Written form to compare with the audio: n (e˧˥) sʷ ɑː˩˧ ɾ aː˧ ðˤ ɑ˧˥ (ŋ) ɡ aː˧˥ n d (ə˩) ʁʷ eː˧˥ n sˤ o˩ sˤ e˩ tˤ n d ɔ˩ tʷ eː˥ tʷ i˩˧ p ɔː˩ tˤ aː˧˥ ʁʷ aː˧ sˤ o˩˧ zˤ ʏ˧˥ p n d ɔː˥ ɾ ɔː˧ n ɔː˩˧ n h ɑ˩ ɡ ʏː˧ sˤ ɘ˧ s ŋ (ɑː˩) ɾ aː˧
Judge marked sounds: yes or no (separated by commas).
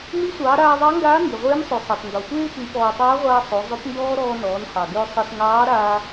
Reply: no, yes, no, no